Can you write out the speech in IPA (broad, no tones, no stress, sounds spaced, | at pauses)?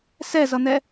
s ɛ z ʌ n̪ ɛ